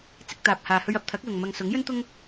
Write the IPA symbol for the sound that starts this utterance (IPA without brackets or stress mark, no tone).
t͡s